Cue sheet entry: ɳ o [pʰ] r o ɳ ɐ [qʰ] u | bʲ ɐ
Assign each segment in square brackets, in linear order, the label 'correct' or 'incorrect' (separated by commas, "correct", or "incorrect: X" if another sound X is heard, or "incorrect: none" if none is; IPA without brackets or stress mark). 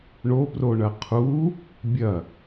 incorrect: p, correct